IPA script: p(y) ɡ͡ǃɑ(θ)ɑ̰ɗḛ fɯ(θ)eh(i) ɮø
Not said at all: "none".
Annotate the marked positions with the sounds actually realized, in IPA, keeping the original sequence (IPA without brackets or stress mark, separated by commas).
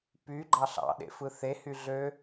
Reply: y, ɬ, θ, y